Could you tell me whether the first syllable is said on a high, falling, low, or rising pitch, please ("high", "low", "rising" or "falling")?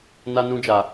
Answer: high